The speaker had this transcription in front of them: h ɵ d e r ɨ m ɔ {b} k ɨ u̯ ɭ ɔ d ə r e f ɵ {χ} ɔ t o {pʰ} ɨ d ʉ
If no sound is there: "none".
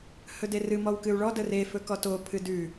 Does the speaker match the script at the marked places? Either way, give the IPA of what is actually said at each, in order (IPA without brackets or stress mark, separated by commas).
w, k, pʰ